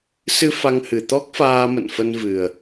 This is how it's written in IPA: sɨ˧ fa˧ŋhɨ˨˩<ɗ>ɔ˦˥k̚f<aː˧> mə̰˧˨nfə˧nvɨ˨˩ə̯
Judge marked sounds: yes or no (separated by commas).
no, yes